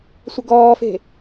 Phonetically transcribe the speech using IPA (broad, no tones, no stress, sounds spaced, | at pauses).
sʷ ə ɡ ɔː f e̤